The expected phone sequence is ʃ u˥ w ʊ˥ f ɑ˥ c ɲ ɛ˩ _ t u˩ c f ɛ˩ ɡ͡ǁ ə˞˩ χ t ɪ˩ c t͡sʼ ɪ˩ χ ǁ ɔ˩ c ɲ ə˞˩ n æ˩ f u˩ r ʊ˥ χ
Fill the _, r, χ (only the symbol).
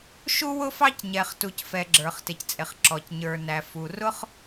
χ